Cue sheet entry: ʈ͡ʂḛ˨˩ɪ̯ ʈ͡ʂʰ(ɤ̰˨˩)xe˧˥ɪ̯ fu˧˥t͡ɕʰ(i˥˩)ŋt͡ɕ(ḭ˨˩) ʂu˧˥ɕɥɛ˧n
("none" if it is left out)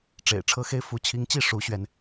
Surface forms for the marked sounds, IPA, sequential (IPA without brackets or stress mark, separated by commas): ɤ˧˥, i˧˥, i˥˩